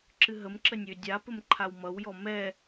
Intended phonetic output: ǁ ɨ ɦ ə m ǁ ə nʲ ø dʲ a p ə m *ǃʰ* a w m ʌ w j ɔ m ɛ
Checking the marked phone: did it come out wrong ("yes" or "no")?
no